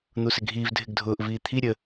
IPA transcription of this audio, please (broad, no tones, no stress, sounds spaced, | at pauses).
n̪ u s ɪ ɡʱ iː v dʱ ɪ ɡ dʱ ʊː ʔ v iː t̪ʰ i ɾʲ ə